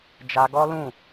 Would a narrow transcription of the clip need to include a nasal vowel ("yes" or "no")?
yes